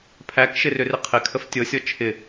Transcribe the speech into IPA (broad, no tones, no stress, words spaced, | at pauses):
pʰækʃɪrʏrɪ qʰɪkʰəf tʲɤsʲɔ t͡ʃʰɪ